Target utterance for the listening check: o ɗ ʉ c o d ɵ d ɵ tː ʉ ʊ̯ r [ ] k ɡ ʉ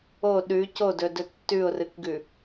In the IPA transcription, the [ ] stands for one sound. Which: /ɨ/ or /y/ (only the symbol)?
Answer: ɨ